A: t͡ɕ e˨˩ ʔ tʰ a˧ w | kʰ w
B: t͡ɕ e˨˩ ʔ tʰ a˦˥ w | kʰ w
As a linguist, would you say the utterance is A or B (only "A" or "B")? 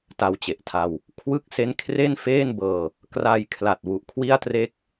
A